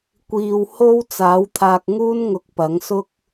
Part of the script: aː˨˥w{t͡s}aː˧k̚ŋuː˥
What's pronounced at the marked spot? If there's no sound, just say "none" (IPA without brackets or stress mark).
t̪ʰ